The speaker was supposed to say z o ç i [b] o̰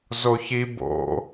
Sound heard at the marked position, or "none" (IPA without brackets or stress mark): b